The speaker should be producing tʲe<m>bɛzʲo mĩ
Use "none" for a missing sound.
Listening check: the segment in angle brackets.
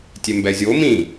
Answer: m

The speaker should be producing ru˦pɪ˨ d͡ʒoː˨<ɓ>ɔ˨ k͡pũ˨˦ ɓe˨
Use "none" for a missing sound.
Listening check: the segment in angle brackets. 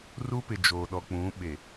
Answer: ɗ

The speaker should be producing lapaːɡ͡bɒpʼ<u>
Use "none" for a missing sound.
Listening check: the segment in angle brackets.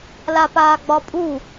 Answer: u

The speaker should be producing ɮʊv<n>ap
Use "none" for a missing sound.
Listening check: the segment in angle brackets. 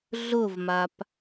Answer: m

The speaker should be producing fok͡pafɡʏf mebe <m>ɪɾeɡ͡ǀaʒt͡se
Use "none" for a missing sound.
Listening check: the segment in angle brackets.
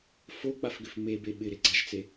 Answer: ɓ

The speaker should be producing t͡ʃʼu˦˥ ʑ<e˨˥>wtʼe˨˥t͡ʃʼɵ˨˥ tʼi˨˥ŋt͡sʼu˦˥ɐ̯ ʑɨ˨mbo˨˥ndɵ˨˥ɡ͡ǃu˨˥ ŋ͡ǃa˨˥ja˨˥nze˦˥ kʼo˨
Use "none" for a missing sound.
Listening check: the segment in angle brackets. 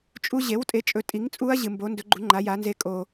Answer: e˨˥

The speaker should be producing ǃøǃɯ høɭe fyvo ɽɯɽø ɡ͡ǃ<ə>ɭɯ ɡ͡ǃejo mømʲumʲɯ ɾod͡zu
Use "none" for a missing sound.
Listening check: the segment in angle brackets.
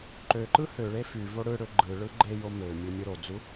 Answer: ɯ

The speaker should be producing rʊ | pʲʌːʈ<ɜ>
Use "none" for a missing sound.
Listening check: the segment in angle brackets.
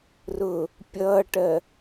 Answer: ɜ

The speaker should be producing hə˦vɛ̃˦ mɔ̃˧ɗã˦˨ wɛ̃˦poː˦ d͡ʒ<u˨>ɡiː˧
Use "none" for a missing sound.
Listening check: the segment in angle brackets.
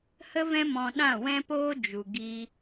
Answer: u˨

